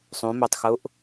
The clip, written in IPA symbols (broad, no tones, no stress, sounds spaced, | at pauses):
sˤ ũ m ø tˤ x u ʔ